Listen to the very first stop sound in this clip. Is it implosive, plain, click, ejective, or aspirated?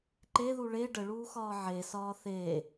click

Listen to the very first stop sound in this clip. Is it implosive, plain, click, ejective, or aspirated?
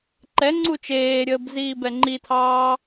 click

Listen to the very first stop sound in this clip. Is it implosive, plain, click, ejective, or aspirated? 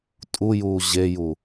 ejective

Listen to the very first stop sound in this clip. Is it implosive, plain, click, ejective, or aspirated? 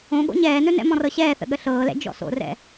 implosive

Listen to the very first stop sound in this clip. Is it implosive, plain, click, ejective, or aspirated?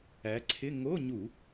click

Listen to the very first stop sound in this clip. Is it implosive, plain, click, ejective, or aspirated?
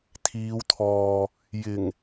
aspirated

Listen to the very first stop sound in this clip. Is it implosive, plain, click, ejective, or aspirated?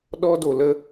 implosive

